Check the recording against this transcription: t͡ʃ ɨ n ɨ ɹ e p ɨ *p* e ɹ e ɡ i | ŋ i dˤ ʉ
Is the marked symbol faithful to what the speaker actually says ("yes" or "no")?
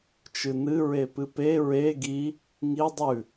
yes